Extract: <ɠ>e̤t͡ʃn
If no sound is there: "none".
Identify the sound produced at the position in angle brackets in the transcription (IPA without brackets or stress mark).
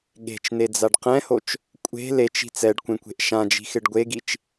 ɠ